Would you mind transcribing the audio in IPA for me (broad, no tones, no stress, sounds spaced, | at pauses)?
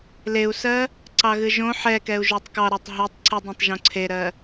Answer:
l e u̯ s ɜ | ǀ ɑ ɣ ɨ ʒ õ ħ ɛ k ɛ u̯ ʒ o tˤ k ɑ ɾ ɑ tˤ ɦ i tˤ ǀ ɨ dˤ õ tˤ ʒ õ ǀʰ e ɾ ɜ